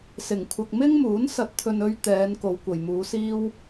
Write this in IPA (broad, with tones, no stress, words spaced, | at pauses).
sɪ˨˩ŋ kʷʰɐ˨k̚mɪ˥ŋmuː˨˥n sɐ˨˥t̚t̪ʰɵ˨nɵ˧ɥ t̪ɛː˨˧n ko˨˧wkʷɐ˨jmuː˨˧siː˥w